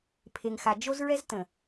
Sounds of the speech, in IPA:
pʰ e˨ ŋ x a˨ d͡ʒ o˦ z ɹ ɛ˦ z t ə̃˨

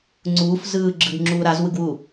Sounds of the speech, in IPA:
ŋ͡ǀ uː f z ɯː ɡ͡ǁ ɯ ɡ ŋ͡ǁ uː ɾ a z w ɯ ɡ w u

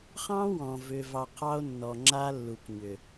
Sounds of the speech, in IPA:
χ ɑ̃˦ w ɔ̃˨ v ʏ˨ v ɑ˨ qʰ ɑ˦ o̯ nː ɔ˨ ŋ͡ǁ a˦ lː u˨ k ɲ ʏ˨

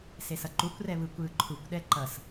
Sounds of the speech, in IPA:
s e s ʌ ǃ u kʷ r ɛ β ɯ kʷ ɯː ǃʰ u kʷ ɗ ɛ ǃ ʌ s

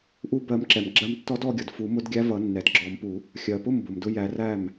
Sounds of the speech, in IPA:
ʔ u˧ b ɜ˨˩˦ m ǁ ɛ˩ m ɡ͡ǁ ɜ˧ m tː ɔ˧˥ d ɔ˧ ɡʲ ʌ˩ d f u˨˩˦ m ʊ˧˥ d ɡʲ æ˧˥ v ʌ˨˩˦ nː ɛ˩ d ɡ͡ǁ ɔ˨˩˦ m p u˨˩˦ | xʲ ɜ˩ p ʊ˥˩ m b ʊ˩ m d ʊ˧ j æ˨˩˦ r æ˥˩ m

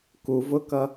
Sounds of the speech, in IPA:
k u v ʊ k ʌ

